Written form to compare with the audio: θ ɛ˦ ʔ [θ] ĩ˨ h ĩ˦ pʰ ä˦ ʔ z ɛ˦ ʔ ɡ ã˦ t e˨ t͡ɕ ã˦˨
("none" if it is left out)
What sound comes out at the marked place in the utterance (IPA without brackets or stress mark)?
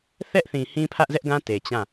θ